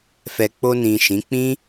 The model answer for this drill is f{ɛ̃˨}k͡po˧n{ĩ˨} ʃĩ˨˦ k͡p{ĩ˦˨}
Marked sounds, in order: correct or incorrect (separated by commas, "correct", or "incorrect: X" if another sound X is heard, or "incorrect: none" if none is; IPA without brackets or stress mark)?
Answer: incorrect: ɛ˨, correct, incorrect: ĩ˦